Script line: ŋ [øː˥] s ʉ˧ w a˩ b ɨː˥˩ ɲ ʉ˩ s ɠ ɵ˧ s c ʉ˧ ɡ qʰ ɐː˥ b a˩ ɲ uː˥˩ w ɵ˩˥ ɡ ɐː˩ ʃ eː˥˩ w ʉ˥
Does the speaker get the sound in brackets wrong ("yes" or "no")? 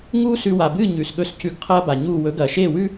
yes